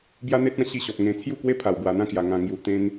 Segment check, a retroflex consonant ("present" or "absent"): absent